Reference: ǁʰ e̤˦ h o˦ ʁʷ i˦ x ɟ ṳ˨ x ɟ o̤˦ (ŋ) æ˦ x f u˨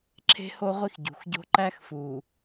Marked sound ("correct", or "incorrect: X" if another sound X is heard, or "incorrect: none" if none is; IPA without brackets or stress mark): incorrect: ǃ